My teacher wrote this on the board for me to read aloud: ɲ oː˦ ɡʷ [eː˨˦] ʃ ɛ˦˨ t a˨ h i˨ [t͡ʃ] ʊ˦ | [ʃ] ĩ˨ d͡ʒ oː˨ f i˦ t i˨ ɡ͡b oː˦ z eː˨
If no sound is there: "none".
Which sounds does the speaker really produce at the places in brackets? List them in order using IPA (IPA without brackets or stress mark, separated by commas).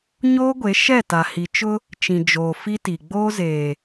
e˨˦, t͡ʃ, t͡ʃ